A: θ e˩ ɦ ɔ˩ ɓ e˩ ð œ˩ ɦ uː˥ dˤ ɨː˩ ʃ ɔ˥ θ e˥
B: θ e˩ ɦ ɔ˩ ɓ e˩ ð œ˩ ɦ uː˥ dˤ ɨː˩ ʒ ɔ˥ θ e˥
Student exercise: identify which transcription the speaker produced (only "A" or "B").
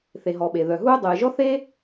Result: B